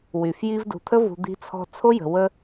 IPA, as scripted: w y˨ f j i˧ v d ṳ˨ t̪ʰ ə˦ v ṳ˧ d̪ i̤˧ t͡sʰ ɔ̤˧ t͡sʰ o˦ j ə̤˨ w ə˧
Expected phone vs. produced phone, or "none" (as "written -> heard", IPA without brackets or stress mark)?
none